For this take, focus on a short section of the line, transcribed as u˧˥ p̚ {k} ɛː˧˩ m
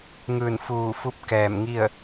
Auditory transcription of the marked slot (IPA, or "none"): k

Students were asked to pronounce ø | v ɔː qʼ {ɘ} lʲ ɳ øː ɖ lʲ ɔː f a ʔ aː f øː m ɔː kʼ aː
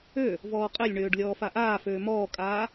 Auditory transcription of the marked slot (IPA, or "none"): ɘ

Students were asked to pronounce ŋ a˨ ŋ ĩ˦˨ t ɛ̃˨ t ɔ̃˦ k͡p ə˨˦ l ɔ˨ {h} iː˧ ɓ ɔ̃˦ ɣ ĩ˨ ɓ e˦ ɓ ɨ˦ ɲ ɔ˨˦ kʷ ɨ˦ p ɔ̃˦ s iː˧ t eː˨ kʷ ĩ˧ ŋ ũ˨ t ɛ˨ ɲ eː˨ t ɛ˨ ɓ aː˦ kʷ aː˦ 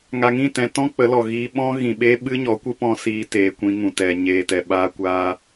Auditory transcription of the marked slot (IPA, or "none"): ɣ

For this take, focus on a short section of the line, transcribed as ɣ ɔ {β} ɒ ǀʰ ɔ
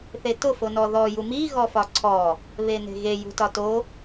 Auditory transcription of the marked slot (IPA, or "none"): f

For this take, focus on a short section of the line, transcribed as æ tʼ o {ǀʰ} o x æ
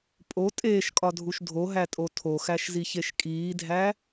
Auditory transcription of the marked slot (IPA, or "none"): tʰ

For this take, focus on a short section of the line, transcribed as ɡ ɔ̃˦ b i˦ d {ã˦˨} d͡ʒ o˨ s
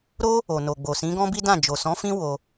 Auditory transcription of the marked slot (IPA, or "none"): ã˦˨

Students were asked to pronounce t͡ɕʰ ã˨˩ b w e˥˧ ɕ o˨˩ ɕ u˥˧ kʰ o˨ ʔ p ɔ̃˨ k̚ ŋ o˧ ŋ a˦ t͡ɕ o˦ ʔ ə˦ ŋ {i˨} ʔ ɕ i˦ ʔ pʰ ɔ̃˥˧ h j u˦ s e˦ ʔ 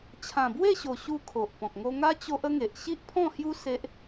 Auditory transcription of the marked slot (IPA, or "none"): e˨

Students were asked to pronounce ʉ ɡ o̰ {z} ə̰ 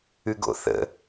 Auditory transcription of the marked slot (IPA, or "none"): θ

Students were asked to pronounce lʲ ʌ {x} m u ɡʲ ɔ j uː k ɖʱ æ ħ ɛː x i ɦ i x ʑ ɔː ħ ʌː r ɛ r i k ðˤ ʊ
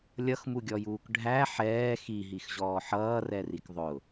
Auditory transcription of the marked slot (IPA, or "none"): x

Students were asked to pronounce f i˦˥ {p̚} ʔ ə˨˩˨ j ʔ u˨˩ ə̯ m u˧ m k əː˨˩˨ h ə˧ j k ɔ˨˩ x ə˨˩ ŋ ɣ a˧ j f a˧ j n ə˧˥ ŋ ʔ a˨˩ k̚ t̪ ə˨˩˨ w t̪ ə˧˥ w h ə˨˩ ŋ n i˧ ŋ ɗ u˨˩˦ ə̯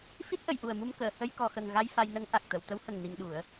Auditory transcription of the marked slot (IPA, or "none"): t̚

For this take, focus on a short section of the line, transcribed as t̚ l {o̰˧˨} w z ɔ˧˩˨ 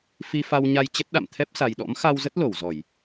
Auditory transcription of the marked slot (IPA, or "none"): o˧˩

